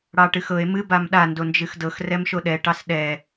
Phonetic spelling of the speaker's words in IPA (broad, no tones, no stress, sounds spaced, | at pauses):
ɽ ɑ ʈ ɨ x ɤ e̯ m ɨ b a m ɗ a n d o n d͡ʒ ɨ x d ɤ x r ɛ m ʃ o ɗ ɛ ʈ ɑ s ɗ ɛ